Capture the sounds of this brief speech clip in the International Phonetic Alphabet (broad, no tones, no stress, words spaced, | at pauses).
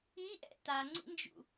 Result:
iʔɛ̰ taŋ͡ǀḭnd͡ʒṵ